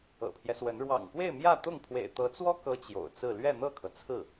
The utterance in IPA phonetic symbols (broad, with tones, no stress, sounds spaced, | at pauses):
ɤ̰˨˩ pʰ j ɛ˦ s w ə˧˥ n ɻ w ɑ̰˨˩ ŋ k w e˥˧ ɪ̯ m j ä˥˧ t̪ ʊ˥˩ ŋ pʰ w ḛ˨˩ ɪ̯ t̪ ɤ˧˥ t͡s w ɔ˥ k ɤ˥ t͡ɕ j o̰˨˩ ʊ̯ t͡s ɹ̩˥˧ l ɥ ɛ˥˧ n̪ ɤ˥˩ kʰ ɤ˩ t͡sʰ ɹ̩˥˩